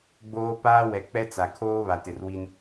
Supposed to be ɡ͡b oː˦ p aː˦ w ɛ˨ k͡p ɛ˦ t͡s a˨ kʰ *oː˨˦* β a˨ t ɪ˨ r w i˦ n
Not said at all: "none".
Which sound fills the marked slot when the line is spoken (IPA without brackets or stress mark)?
oː˦